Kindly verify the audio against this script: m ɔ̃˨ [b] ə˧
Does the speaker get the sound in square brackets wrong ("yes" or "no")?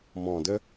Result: yes